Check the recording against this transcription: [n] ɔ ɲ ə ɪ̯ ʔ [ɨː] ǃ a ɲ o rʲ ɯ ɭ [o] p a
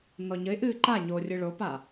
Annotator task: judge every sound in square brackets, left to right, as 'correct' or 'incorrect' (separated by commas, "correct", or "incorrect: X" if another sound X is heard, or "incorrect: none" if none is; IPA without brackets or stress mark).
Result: correct, correct, correct